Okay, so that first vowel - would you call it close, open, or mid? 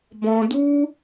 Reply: mid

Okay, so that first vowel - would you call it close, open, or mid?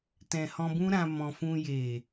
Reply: mid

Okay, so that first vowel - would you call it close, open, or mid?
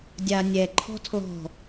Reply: open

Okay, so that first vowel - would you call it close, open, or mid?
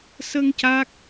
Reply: mid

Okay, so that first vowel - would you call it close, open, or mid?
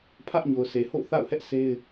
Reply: open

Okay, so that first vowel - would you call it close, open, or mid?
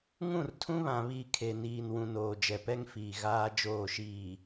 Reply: close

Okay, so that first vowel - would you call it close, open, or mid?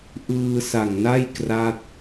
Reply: close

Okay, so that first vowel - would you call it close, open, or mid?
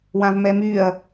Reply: open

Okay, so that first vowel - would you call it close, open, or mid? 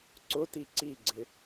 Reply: close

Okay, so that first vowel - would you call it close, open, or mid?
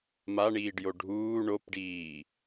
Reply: open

